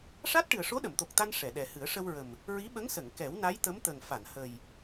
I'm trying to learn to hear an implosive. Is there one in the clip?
yes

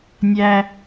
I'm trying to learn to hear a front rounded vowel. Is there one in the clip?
no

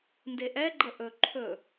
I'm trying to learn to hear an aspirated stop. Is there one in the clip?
yes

